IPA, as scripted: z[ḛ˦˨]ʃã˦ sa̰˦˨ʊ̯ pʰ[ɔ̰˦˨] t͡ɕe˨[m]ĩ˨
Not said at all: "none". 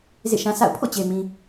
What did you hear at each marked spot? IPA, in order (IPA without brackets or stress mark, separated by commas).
ḛ˦˨, o̰˦˨, m